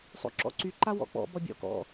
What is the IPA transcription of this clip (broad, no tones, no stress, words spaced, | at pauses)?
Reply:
sˤo̰ǁɔ̰ǀy ǃawɔ̰k͡pɔ̰ bɔbʲɔ̰ kɔ̰